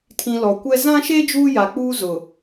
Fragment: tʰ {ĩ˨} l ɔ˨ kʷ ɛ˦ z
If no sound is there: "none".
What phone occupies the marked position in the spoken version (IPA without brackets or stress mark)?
ĩ˨